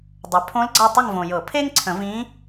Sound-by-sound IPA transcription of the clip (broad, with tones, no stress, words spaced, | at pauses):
dˤœ˩˥ pʰõ˧˥lɡ͡ǀa˦˨ tˤə˦˨ŋvõ˨jɤ˨˩˦ pʰe˥ŋǀʰə̃˨˩˦vĩ˧˥